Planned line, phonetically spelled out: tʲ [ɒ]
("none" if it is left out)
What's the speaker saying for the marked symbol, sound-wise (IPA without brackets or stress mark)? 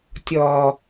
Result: ɒː